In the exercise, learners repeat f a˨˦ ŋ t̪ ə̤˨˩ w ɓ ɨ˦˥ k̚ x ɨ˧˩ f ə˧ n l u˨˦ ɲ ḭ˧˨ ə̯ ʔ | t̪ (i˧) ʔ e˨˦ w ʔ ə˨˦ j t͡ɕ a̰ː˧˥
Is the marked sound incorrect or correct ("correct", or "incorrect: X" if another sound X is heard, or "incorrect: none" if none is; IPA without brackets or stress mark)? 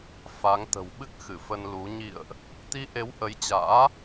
correct